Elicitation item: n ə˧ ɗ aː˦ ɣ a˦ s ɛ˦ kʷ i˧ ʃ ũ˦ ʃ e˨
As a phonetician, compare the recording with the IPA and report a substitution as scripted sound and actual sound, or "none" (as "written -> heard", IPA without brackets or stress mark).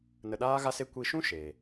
ɛ˦ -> e˦